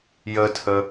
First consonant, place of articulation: palatal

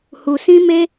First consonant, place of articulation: glottal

